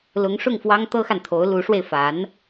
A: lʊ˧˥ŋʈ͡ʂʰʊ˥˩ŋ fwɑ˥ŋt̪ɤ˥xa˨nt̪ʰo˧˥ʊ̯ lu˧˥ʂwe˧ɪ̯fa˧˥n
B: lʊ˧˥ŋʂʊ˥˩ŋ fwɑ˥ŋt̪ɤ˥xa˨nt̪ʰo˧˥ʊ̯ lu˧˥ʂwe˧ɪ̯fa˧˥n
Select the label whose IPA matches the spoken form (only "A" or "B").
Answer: B